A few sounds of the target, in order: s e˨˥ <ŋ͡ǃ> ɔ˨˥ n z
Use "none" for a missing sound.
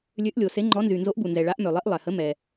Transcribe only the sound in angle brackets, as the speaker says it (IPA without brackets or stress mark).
ŋ͡ǃ